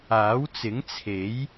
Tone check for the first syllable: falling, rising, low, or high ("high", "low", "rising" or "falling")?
rising